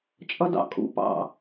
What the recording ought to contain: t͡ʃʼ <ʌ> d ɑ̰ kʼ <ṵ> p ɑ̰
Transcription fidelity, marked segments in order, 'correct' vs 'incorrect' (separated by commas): correct, correct